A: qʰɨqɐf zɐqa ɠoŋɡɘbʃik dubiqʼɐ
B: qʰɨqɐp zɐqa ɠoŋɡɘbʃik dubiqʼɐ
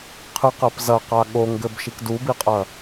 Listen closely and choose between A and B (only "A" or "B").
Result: B